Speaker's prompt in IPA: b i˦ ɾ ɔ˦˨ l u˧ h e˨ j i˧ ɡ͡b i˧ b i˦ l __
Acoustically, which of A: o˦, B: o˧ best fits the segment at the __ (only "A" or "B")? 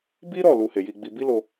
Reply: B